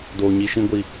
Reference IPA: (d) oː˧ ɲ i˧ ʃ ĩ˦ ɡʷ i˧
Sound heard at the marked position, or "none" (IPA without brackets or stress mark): d